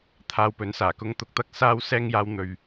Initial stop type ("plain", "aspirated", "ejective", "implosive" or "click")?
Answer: aspirated